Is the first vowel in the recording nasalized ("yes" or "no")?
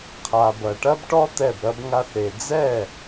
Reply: no